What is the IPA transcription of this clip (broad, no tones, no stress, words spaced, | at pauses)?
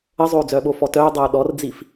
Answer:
əzˤoːd͡zœː ɓofɔtœːdˤoː ɗɔrd͡zif